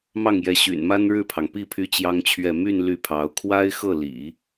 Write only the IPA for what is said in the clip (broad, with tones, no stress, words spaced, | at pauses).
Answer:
mɑ˥˩ŋjɛ˧˥ ɕy̰˨˩nma˥nɻɻ̩˥˩pʰɑ˩ŋ pi˥˩ pʰy˥t͡ɕjɑ˥ŋt͡ɕʰɥɛ˥˧ my˥˧n ly˥˩pʰɑ˧˥ʊ̯ kʰwa˥ɪ̯xɤ˥˩lḭ˨˩˦